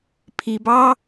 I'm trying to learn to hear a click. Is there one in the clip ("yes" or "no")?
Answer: no